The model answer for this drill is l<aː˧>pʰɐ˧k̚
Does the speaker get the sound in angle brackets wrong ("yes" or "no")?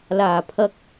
yes